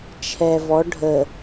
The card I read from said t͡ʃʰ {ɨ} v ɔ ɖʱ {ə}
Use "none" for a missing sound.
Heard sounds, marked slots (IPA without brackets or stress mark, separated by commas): ɛ, ə